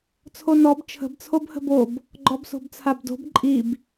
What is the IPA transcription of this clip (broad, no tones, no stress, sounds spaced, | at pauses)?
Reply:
t͡sʰ o n ɔ b t͡ʃʰ ə̤ b t͡sʰ o b h ə̤ b o b | ɡ͡ǃ ɔ b s o̤ b t͡sʰ a b d o̤ b ǃʼ i b